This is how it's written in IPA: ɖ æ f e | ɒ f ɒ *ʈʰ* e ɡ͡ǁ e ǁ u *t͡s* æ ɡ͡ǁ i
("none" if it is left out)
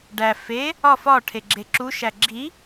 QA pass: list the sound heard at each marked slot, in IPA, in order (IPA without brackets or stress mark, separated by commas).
ʈʰ, ʃ